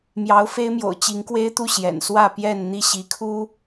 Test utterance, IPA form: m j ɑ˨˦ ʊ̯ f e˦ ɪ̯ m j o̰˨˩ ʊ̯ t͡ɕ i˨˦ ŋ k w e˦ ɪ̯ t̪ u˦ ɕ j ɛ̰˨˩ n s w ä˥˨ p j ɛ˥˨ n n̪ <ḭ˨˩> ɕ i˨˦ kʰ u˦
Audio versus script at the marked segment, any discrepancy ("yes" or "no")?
yes